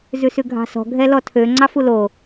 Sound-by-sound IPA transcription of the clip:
zʉsʉɡʱɑ̤sɔ̤ ɡʱɛlɔtʰø ŋ͡ǀɑfulo

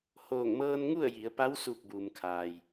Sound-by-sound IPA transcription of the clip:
hoː˧˩ŋmɤː˧nŋu˥˨ə̯ ji˩˧ə̯pa˧˥w suː˧˩k̚buː˩m kʰaː˩j

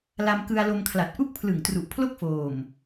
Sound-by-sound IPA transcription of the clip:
la˧mkɯ˧a̯lo˧m kʰla˨˩t̚ʔu˦˥k̚pʰlɯ˨˩ŋ tru˨˩ʔpʰlo˥˩k̚foː˨˩m

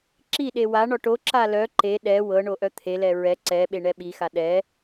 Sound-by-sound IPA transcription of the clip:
ǁiɗe wa ɳɔʈoǁa lœ ǃe ɗɛ wɤ ɳoʔœt̪ʰelɛ ɹɛ ǀɛɓe ɳɛɓixa ɗɛ

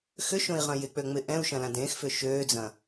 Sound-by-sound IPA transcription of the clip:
xʏʃõi̯ʁɐ̃ jɪk͡pø ŋ͡mɪ ʔɛ̃u̯ʃɐ̃lã dẽxfʏ ʃøːd͡zɐ̃

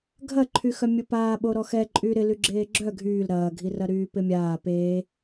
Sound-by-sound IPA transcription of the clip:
ɡʱɐǃʰyxœ mʲʊpaːɓo ɾɔxɛǃʼy ɾɪly ɡ͡ǁeːɡ͡ǁœ ɡʱyːl ɾɐːɡʱirɐ ɾyːpɪmʲaː pe

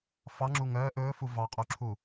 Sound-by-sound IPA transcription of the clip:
fɑŋ͡ǁu ŋœː ʔɵːfu vɑqʼuǁʰu

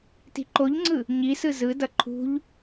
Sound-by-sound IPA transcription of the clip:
ti̤ǃoʎŋ͡ǀɯ | ɲisɯ zɯdʌ ǃʰṳʎ

